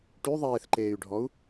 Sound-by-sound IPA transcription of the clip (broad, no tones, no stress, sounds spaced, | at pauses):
ʈ y ðˤ eː θ ǃ eː y̯ ɖʱ ɔ u̯